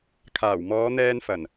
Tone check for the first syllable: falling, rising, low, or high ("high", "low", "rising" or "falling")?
low